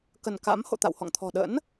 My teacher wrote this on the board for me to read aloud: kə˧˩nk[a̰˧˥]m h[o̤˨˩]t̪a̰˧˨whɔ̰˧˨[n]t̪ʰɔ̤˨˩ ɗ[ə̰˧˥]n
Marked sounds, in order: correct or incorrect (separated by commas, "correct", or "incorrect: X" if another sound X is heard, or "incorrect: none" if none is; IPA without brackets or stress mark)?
correct, incorrect: o̰˧˨, incorrect: ŋ, correct